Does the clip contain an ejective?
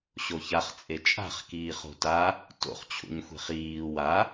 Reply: yes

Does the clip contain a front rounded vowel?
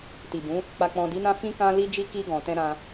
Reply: no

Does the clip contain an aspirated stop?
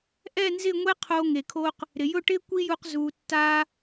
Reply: yes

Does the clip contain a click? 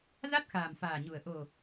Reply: no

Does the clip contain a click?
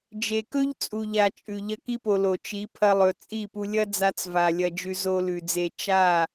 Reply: no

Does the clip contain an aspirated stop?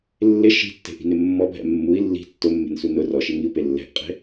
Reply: no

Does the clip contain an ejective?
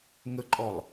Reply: yes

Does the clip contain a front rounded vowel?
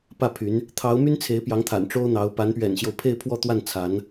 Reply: yes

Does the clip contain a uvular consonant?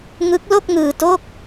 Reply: no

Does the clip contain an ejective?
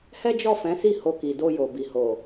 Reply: no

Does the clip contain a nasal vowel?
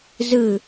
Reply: no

